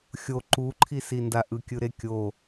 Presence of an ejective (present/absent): absent